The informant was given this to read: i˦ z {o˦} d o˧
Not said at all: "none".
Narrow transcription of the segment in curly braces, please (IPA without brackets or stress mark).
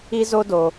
o˦